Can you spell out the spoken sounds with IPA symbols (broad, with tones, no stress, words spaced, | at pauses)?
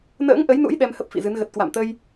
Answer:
nə̰ː˧˥ŋʔə˨˦jnṵ˧˥j ɗɛ˧mhə˦˥p̚fḭ˧˨zɨ˨˦n ɣə˨˩t̚kwa̰˧˨mt̪ə˧j